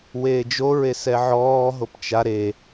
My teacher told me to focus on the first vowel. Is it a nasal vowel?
no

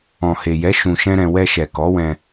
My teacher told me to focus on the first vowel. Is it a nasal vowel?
yes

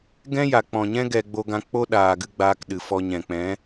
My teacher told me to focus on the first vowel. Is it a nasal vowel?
yes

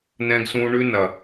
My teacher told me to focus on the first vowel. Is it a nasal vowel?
yes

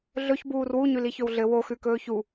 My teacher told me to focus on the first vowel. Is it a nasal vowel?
no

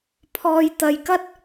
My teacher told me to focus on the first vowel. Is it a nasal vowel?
no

